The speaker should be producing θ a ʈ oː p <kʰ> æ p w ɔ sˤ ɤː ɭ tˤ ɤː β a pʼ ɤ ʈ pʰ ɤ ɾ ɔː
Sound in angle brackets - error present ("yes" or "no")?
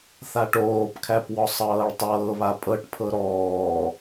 no